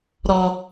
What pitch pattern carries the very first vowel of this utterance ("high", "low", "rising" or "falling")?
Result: high